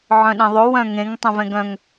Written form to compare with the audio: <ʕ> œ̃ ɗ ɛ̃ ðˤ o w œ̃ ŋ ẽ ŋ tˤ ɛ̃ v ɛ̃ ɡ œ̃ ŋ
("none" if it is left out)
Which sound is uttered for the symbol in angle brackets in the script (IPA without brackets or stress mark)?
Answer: ʕ